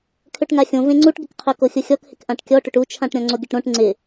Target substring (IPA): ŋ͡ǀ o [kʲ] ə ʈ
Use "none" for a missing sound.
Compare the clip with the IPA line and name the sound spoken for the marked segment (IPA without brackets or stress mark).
ɡʲ